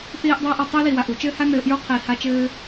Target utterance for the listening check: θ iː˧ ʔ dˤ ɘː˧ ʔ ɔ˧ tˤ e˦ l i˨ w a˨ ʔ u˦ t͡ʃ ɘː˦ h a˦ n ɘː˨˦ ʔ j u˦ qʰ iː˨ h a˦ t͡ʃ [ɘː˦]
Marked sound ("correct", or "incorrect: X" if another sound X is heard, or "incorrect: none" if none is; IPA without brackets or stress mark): correct